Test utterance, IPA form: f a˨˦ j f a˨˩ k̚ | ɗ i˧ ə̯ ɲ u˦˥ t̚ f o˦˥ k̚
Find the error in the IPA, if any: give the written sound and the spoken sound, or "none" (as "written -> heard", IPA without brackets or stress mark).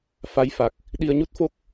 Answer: none